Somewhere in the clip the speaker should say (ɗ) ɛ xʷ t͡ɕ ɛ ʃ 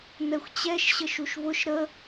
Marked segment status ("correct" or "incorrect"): incorrect